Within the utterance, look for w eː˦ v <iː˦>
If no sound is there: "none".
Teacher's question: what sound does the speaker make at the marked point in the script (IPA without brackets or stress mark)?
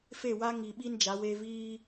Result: iː˦